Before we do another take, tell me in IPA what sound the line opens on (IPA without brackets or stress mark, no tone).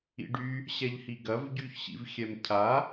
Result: ḭ